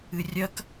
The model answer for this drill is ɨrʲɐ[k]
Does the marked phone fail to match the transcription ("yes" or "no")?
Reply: no